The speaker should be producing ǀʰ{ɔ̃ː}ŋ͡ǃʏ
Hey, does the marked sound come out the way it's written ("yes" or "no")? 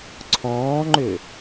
yes